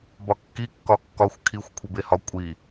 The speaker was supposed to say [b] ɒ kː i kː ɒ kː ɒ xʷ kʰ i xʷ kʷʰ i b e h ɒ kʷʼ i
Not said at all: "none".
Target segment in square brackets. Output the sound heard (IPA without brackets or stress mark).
b